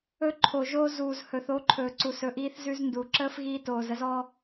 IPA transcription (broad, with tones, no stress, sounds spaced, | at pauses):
ɵ˦ ǃʰ o˨ ʒ oː˦ z uː˨ z h ɵ˨ θ o˨˦ ǃʰ ɵː˨ ǀ u˨ s ɵ˨ ʔ iː˦ θ z ʉ˦ z n d u˨ ǁ əː˦ f ɣ iː˧ t oː˨ z ə˧ z ɔ˦